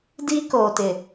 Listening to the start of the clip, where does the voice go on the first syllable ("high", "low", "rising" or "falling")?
high